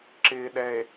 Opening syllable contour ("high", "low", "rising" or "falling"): low